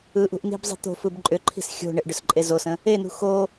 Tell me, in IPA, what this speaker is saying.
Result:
ɯ ʔ ṳ ʔ n i̤ b zˤ i̤ t̪ o̤ f ɯ b ǃʼ ʏ ǃʰ i̤ s xʲ o̤ ɳ ɪ ʔ ɖ ʏ s ǃʼ e z o s ə̃ | e n ṳ x o

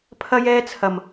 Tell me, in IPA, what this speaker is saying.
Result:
pʰ ɐ˥ j ɛː˥ t͡sʰ ɐ˨˩ m

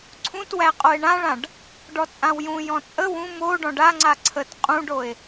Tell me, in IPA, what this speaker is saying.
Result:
ǀʰ ũ t w æ qʼ o e̯ ɳ ã ɭ ã ɖ | ɖ ɔ t͡sʼ ã w j ũ j ɔ̃ t͡sʼ ə w ũ m o ɖ ɔ̃ ɖ a ŋ͡ǀ a ǀʰ ə t qʼ ũ ɖ o e̯

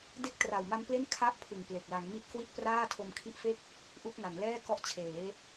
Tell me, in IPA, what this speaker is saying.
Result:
d e˥˩ k̚ t r a˨˩ w m a˦˥ m p l e˥˩ n kʰ a˥˩ ʔ pʰ ɯ˨˩ ŋ p l e˨˩ k̚ l a˩˦ ŋ m i˦˥ t̚ k w i˥˩ t̚ p r aː˥˩ tʰ o˧ m kʰ i˦˥ ʔ f e˥˩ k̚ | ʔ u˦˥ k̚ n a˩˦ n l ɛː˥˩ k ɔ˦˥ ʔ t͡ɕʰ eː˩˦

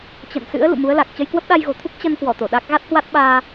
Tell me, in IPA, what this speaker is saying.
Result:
t͡ɕ ə̰˧˨ n s ɨ̰˧˥ ə̯ l ṵ˧˨ m u˨˦ ə̯ l a˨˩ k̚ t͡ɕ ə˧ j k w ə˦˥ p̚ ɗ a˧ j ɣ o̤˨˩ t̪ʰ u˦˥ k̚ t͡ɕ ə˧ n k w ɔ˧˩ t̪ o˧˩ ɗ a˦˥ k̚ ɣ a˦˥ t̚ h w a˦˥ t̚ ɓ aː˧

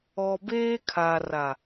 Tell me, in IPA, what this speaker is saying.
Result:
ɔ˨ b eː˦ kʰ a˨ r a˨

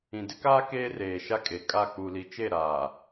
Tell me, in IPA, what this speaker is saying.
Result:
ĩ˨ d ɪ˦ k aː˦ k eː˦ r eː˨ ʃ a˦ kʼ e˨ kʼ a˦˨ k͡p u˨ l i˨ t͡ʃ e˦˨ ɾ aː˨

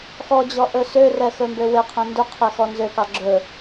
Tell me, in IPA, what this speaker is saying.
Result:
x ɔ d͡ʑ ɔ ʔ ɵ s ø r ɛ x ɵ m b ø w e qʰ ẽ n d ɵ qʰ e x ɔ n z ø k ɑ ɡ͡ǁ ɵ

